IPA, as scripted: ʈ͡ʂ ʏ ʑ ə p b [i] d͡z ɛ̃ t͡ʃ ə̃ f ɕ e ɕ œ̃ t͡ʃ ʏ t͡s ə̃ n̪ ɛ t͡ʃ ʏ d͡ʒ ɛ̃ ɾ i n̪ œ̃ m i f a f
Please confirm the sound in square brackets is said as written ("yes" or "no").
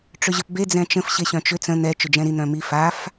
no